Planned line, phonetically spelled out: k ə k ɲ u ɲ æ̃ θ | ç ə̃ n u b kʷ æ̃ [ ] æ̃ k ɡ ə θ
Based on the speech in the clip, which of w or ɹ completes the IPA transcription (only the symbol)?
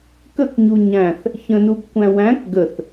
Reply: w